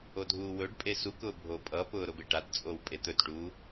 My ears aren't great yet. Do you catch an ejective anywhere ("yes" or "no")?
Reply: yes